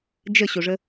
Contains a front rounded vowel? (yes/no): no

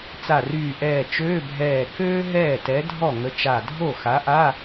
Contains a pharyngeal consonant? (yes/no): no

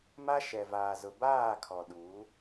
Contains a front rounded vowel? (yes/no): no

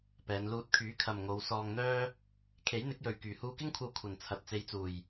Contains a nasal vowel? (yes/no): no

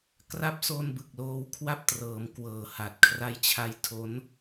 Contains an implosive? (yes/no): no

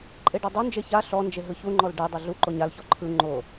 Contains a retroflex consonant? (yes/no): yes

